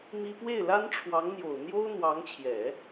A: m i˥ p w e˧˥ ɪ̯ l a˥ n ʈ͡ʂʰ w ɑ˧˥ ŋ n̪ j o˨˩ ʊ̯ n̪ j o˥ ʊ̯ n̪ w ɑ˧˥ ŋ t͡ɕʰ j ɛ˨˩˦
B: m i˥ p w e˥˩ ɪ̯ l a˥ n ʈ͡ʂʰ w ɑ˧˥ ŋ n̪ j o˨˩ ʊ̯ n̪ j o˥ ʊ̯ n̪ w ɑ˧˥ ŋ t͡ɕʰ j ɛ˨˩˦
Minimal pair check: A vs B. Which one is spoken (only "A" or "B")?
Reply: B